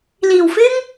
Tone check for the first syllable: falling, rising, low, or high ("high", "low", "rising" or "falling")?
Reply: low